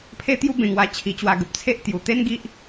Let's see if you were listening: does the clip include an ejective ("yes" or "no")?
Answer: no